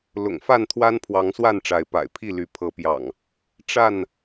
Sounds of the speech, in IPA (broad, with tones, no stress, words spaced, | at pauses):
lʊ̰˨˩ŋfa˥˨nt̪ʰwa˦npʰwɑ˨˦ŋ swa˥˨nʈ͡ʂa˨˦ɪ̯ pa̰˨˩ɪ̯pʰi˥˨ly˨˦ pʰɤ˨˦pjɑ̰˨˩ŋ | ʈ͡ʂa˥˨n